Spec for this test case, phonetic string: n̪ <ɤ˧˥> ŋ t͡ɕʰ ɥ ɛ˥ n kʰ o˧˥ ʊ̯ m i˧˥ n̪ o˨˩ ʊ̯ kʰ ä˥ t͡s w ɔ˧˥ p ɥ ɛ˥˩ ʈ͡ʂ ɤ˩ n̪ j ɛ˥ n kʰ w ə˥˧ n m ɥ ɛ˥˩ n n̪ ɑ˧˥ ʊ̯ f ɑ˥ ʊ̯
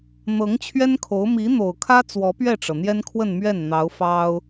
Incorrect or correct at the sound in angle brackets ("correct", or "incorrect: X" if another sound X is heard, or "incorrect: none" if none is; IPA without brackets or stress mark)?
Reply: correct